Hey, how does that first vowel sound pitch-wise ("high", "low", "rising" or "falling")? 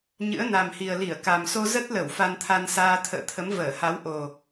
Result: rising